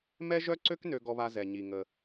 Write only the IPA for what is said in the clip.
m ɛ˥ ʒ œ˥ ǀ ø˥ k n ø˧ ɡ ɔ˧ β a˧ z ɛ˩ ɲ i˩ ŋ ə˩

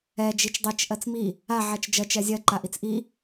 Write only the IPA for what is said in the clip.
ɛ d͡ʒ i t͡ʃ dˤ i t͡ʃ ʔ ɜ t͡s m i | a ʕ ɛ t͡ʃ d͡ʒ ɜ t͡ʃ ɛ zʲ ɜ ǃ a ʔ i t͡s ʔ i

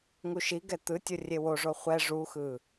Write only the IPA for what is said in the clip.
ŋ u ʃ i ɡ ɛ t̪ ɯ tʲ o rʲ e w o ʐ o χʷ ɛ ʐ u x ɯ

